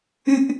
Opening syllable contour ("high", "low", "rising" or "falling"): high